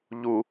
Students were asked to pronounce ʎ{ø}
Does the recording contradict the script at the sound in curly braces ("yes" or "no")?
yes